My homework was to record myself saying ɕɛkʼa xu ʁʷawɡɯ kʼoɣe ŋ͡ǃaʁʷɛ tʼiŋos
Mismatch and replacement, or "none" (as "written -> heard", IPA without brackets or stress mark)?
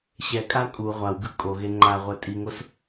x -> kʼ